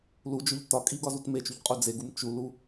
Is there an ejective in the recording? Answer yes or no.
yes